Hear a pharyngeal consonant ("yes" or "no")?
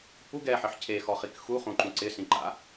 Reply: yes